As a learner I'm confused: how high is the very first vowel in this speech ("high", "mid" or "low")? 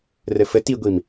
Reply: mid